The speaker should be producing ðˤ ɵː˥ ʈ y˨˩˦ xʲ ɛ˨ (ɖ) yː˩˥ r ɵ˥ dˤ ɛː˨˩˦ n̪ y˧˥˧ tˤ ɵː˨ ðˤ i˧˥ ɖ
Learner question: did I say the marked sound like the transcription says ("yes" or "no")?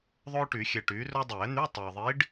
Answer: no